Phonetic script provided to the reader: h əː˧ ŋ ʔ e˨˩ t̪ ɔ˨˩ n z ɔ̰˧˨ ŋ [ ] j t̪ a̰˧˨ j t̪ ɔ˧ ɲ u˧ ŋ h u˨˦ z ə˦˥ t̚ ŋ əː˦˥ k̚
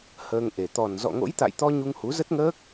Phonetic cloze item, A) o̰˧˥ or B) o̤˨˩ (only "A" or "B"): A